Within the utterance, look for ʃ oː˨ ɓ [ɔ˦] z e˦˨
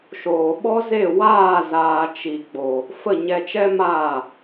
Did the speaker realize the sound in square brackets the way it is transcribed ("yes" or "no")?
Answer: yes